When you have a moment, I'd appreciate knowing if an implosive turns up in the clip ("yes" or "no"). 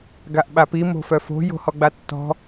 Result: yes